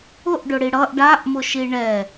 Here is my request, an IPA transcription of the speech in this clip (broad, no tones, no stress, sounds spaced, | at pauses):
ʊ ʔ ɖ ʊ ɽ i ɽ ʌ ʔ ɖ a ʔ m ʊ ʃ i ɳ ɛ